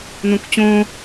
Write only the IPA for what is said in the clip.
n õ k t͡ɕ õ

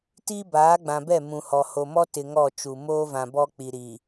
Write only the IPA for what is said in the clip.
t iː˦ b aː˨˦ ɡ͡b ã˨ b ɛ˦˨ m ũ˨ h ɔ˨ h o˨ m ɔ˦ t ɪ˨ ŋ ɔ˦˨ t͡ʃ u˨ m oː˦ v ã˨ b ɔ˦ k͡p i˨ ɾ i˨

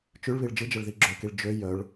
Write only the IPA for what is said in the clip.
t͡ʃ ʉ ɭ β i ɭ d͡ʒ ɯ d͡ʒ ə ɭ ð i ɡ͡ǁ ø k i ɭ d͡ʒ ø j œ ɭ

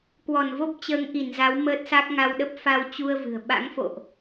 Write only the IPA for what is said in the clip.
k w ɔ˧˩ n v o˦˥ p̚ t͡ɕ əː˨˦ ŋ ʔ i˧˩ n z a˨˦ w m əː˦˥ t̚ s a˦˥ k̚ ŋ a˧ w ɗ ə˦˥ p̚ f a˧ w t͡ɕ u˧ ə̯ v ɨ̤˨˩ ə̯ ɓ a̰˧˥ ŋ f o̰˧˨ ʔ

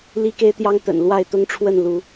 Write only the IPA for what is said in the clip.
l i˦ k e˦ ɪ̯ t̪ j ɑ˦ ŋ t̪ ə̰˨˩ n l w a˥˨ ɪ̯ t̪ ʊ˦ ŋ ʈ͡ʂʰ w ə˥˨ n l u˨˦

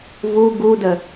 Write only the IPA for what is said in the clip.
v u ɡ u d ə

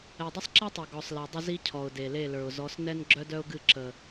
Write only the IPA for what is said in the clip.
ɛ˨ dˤ ə˦ sˤ ǁ ɛ˦ tˤ ɛ˨ ɡ ɔ˨ sˤ l ɛ˨ dˤ ə˦ z i˦ cʰ ɔ˨ ʊ̯ d e˨ l e˦˨ l ə˞˨ ʊ̯ z ɔ˨˦ s n ɛ˦ n ɡ͡ǁ œ˦ d œ˦ ʊ̯ ɡ ɨ˦˨ ǁ ə˨

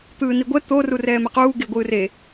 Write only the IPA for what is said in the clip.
t̪ ɯː n i ɡʷ ɛ t̪ o r u r ɛː m ɛ q uː ɡ e ɡʷ ɯː r e

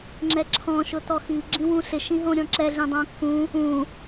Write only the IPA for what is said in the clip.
ŋ͡ǁ ɛ ǁʰ ɔ̃ ʃ ʊ t ɔ x i ɡ͡ǁ ĩ w ũ ɬ ɪ ʃ ĩ ɦ õ ɾʲ ɔ̃ ǁ ɛ ɮ ĩ dˤ õ kː ũ | ũ

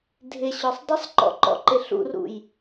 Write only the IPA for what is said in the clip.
dʱ ɪ ɕ ɔ sˤ dˤ ɪ sˤ ǃ ɔ̰ ǃ ɔ̰ ǃ ɪ ɬ ṵ r ṵ j

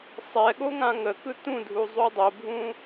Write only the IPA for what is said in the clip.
sˤ ɛ ɠ o ŋ ã ŋ ə k ɯ t ũ dʱ u zˤ u dˤ o bʱ ũ

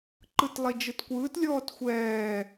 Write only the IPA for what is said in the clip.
ǃ ɯ t lˠ i d͡ʒ ɯ t kʷ ɯː t lʲ ɔː t xʷ ɛː

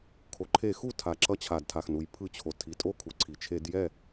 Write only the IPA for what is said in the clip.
kʰ o˩ ǃʰ e˧˩˧ x u˥˩ tʰ a˩ ǁ ʌ˧˩˧ t͡ɕʰ a˩ d tʰ a˩ x n u˩ j pʰ ɯ˧˩˧ t͡ɕʰ o˩ tʰ i˩ tʼ o˥˩ kʰ u˩ ǀʰ i˩ t͡ʃʰ e˧˩˧ d j ɛ˥˩

